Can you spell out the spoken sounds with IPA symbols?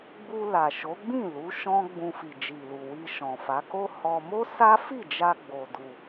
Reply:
ɡ͡bu˧la˨ʃo˨˦ɡ͡bĩ˦˨ lu˨˦ʃɔ̃˦ɡ͡bũ˧ fi˨d͡ʒi˨lu˨ wi˧ʃɔ̃˨fa˨˦ko˦ hɔ˧ mo˦sa˦ fi˦˨d͡ʒa˧ ɡ͡bo˧du˧

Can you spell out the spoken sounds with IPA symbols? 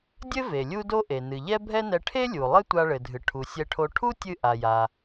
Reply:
dʲɘ˥ve˩ lʲu˥do˥ʔe˩ nɨ˩ʎɛ˥ bʱɛ˥nɛ˧ ʈʰe˥lʲu˩ lˠɘ˥tʷa˧ɭɘ˩dʱɨ˩ ʈʰu˩sʲɛ˧ʈʰo˧ ʈʰu˥tʲɨ˧ ʔa˩ja˩

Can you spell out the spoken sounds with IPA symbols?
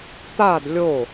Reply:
t̪ad lʲo

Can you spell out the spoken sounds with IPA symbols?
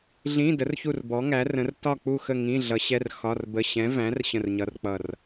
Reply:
ɮĩ˧˥˧ də˨˥rçu˦˨r bɔ˨˥ŋæ˨˥rə̃˨˥r tɒ˦˨k͡pu˦˨xə˦˨ ŋĩ˧˥˧ɮʌ˨˥ɕɛ˧˥˧r xɒ˧˥˧rbə˧˥˧ ɕɛ̃˨˥ væ̃˨˥r ɕə̃˦˨rɲʌ˧˥˧rk͡pʌ˦˨r

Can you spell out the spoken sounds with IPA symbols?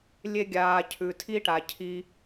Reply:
lʲe˧ɡʲaː˨ cʰʉ˨tʰi˦ʈa˨ cʰi˧

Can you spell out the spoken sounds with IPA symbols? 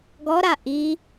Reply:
ɡɔɾa ʔi

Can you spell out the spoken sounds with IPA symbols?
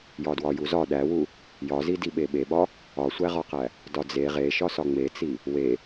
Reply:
jɒdwɒjuzɒ ɗæwu | jɒzi diɓeɓeɓɒ | ɒsʷæʁɒqæ | dɒd͡ze ʁeʃɒsɒ ŋ͡met͡si | we

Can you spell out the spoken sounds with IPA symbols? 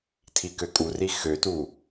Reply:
tʰikøkʼuri xøtu

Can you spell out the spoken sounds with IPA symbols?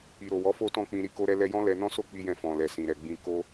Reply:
i˨ɾo˨ wɔ˨˦fo˦tɔ̃˦˨k͡pĩ˧ ɾi˦ko˦ɾɛ˦ lɛ˧jɔ̃˦ lɛ˧nɔ̃˦ so˦k͡pi˧jɛ̃˧ fɔ̃˨ lɛ˨sĩ˨ɾɛ˨ɡ͡bĩ˧ ko˦

